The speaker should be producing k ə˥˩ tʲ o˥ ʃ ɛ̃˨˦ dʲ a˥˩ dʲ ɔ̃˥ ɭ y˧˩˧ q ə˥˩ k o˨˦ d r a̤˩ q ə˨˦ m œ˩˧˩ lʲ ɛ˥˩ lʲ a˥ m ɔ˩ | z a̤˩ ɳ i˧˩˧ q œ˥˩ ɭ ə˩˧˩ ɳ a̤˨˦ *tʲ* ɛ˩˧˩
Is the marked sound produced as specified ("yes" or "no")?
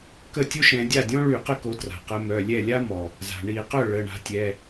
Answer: yes